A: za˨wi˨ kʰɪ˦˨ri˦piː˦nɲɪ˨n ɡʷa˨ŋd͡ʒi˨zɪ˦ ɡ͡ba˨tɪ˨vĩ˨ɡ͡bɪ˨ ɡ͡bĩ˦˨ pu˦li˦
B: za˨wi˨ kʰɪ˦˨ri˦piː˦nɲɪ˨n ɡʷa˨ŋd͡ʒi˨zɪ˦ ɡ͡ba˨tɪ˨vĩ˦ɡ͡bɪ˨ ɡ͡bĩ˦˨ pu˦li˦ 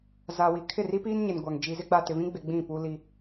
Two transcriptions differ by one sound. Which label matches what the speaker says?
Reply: B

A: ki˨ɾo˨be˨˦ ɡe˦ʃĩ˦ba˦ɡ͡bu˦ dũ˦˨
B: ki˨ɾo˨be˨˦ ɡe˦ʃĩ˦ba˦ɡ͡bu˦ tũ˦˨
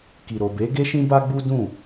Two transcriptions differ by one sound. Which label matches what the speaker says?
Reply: A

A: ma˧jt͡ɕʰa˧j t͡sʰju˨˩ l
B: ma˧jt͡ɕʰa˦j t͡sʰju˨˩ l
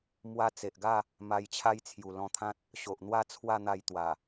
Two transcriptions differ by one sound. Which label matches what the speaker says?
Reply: B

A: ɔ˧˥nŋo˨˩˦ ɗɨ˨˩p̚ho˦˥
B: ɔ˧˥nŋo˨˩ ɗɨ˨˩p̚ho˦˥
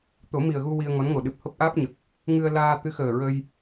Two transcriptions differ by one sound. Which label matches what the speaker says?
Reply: B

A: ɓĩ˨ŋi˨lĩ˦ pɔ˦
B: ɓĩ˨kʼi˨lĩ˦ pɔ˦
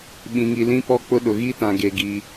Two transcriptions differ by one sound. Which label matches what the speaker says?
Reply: A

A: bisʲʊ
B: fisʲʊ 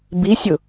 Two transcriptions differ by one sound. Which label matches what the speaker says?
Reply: A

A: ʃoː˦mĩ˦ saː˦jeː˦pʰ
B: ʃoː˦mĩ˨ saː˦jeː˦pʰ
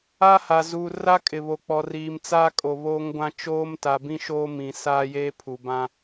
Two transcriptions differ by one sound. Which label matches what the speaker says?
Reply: B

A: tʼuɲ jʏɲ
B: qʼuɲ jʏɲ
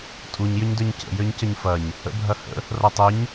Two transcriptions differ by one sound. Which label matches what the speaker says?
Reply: A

